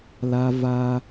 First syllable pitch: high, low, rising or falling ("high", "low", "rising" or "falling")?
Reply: high